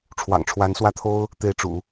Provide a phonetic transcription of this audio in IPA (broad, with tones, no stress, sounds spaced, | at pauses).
ʈ͡ʂʰ w ɑ̰˨˩ ŋ ʈ͡ʂʰ w a˧˥ n s w ä˥˩ t̪ʰ o˥ ʊ̯ | t̪ e˥˩ ɪ̯ ʈ͡ʂ ṵ˨˩˦